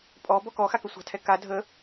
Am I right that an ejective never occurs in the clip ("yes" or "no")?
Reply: no